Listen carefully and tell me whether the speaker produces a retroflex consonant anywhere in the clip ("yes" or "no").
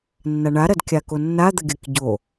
yes